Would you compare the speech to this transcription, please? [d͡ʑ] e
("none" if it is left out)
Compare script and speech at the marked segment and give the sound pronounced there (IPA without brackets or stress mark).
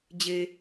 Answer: d͡ʑ